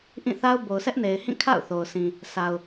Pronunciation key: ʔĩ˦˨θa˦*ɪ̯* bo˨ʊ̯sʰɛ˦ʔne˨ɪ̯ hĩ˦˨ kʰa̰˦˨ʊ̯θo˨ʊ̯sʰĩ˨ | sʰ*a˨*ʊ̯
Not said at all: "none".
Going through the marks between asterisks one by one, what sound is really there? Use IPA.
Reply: ʊ̯, a˨

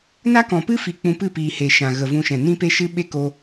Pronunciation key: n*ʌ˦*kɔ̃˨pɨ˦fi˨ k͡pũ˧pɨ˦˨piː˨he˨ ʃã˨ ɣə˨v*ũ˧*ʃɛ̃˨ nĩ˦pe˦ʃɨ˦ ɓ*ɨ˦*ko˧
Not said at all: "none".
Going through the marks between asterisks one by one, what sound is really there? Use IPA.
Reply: a˦, ũ˧, e˦

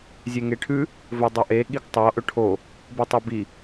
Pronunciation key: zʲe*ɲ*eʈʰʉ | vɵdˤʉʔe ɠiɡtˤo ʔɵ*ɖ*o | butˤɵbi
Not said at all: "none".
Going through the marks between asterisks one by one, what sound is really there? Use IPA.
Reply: ŋ, ʈʰ

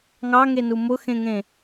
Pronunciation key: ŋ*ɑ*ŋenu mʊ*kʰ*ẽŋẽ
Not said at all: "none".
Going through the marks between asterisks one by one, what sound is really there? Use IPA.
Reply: ɑ, x

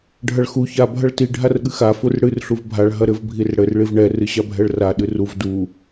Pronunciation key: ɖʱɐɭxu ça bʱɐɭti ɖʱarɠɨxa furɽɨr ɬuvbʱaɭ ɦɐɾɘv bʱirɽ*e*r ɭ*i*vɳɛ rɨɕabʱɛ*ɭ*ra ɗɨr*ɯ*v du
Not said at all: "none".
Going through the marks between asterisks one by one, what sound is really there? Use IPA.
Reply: ɘ, i, ɭ, u

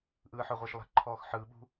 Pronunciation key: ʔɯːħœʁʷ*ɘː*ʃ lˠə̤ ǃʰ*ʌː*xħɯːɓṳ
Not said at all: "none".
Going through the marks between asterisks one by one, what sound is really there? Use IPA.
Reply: ɘː, ɔː

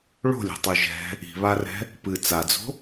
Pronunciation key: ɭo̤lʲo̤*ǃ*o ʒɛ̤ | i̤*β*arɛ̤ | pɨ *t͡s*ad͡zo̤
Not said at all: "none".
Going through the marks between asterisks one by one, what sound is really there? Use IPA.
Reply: tˤ, β, t͡s

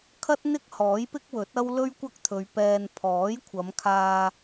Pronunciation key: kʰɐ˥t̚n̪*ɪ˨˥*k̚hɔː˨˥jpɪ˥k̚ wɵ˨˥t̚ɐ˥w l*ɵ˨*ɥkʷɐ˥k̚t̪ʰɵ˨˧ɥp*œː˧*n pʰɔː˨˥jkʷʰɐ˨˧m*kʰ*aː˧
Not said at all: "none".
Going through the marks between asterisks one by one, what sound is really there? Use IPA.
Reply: ɪ˥, ɵ˥, ɛː˧, kʰ

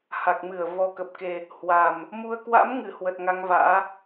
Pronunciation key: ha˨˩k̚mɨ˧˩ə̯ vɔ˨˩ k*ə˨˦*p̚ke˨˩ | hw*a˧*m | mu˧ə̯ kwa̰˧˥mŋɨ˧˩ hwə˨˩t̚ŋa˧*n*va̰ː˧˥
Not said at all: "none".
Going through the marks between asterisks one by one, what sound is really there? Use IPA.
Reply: ə˨˩, a˨˩, ŋ

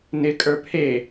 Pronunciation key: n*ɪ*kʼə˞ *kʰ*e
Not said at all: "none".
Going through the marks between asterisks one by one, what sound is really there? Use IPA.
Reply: ɪ, pʰ

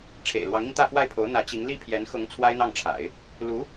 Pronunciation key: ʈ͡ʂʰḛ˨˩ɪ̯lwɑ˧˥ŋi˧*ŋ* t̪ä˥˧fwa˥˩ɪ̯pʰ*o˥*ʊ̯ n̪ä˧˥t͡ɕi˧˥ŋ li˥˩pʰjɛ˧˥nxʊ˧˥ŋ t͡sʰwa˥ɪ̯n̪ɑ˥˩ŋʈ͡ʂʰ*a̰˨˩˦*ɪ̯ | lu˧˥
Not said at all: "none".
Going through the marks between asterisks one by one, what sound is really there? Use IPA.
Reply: ŋ, o˧˥, a̰˨˩˦

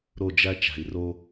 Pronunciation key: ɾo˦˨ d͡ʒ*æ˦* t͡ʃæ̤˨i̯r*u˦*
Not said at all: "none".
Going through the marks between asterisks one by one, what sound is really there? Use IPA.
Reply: æ˦, o˦

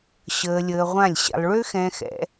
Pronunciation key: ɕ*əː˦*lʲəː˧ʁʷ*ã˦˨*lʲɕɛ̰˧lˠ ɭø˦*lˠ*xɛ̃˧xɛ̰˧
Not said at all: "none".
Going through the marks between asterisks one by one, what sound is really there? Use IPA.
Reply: əː˧, ã˦˨, none

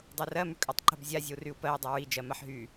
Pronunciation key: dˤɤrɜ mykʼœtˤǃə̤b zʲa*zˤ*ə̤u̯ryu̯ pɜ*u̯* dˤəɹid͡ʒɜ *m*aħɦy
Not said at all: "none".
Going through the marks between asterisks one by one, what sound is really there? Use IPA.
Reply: zʲ, i̯, m

